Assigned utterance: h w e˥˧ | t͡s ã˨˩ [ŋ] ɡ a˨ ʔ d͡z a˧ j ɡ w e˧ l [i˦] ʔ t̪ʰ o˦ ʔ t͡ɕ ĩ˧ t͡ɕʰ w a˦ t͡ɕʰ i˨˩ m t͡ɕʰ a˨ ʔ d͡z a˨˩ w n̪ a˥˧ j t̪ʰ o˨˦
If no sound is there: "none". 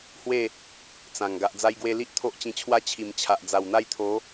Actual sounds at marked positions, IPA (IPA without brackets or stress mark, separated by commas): ŋ, i˦